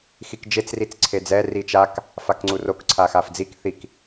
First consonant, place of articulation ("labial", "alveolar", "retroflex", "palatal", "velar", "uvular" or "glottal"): velar